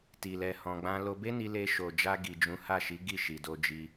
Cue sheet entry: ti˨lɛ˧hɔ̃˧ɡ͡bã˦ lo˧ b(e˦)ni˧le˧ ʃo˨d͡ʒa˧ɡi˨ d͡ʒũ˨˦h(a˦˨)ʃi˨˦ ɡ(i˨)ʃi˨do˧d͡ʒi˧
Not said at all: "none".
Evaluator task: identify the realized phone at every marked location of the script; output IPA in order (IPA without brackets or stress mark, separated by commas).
e˦, a˦˨, i˦˨